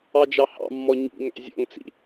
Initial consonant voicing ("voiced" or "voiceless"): voiced